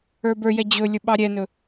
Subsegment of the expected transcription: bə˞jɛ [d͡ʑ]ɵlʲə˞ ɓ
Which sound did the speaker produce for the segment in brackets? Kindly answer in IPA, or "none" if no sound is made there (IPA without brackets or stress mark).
d͡ʑ